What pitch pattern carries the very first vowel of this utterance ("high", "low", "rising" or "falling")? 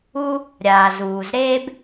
high